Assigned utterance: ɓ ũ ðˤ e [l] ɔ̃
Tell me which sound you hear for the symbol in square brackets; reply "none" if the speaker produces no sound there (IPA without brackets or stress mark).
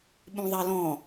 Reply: l